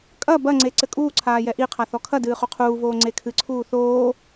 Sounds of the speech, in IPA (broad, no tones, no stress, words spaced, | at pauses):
kʼɐ bɐŋ͡ǀe ǀɘkʼuːǀʰaː jɛʔiqʰa θɔkʰɐdɨː χoqʰuːvoː ŋ͡ǀekʰɨǀʰuː θoː